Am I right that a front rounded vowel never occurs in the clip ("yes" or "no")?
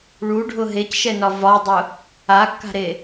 yes